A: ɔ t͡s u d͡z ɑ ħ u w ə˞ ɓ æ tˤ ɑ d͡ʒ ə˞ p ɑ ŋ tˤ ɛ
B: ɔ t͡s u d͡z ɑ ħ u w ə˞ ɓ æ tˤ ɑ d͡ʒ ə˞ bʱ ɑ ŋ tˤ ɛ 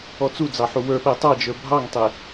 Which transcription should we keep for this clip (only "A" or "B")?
B